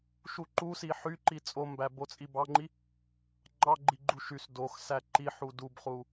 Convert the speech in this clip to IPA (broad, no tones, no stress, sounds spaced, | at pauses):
ʃ u ǃ u s i ħ y ǃ i t͡sʼ o m b æ b o t͡sʼ i b ɑ ŋ͡ǃ i | ŋ͡ǃ ɑ ɡ͡ǃ i ɡ͡ǃ u ʃ y s d o x s æ ǃ i ħ u d u b χ u